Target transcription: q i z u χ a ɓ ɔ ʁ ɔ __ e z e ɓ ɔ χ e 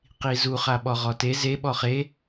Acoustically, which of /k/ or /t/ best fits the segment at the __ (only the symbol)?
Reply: t